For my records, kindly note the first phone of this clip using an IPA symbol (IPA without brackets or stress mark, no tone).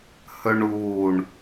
h